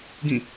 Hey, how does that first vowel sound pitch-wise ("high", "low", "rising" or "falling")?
falling